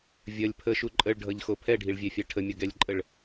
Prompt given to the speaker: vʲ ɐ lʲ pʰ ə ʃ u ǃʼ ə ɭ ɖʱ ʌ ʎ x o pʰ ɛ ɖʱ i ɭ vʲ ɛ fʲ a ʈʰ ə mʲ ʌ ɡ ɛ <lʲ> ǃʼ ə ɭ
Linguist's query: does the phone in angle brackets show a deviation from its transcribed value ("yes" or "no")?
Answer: no